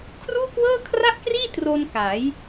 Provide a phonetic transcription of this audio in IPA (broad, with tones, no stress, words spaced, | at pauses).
kʰruː˥˩kwɤː˥˩kʰra˥˩ʔkriː˥˩ tro˧nka˩˦j